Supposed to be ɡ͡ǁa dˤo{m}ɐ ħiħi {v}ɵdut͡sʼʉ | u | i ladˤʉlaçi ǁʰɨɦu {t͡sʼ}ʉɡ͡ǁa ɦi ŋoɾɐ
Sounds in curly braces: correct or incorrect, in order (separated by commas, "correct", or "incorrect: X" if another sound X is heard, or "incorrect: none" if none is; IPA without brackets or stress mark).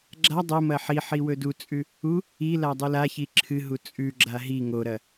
correct, incorrect: w, correct